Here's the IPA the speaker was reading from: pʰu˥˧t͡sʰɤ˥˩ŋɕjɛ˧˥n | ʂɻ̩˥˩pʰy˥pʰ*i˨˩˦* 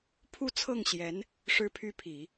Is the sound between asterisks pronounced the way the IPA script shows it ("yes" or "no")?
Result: yes